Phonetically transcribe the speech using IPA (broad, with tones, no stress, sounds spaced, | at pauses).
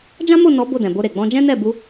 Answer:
d͡ʒ ã˦ m o˦˨ n ɔ˨˦ b o˦˨ d ɛ̃˨ b o˧ ɾ e˨ ɡ͡b ɔ̃˧ d͡ʒ ɛ̃˦ n ɛ˦˨ b u˧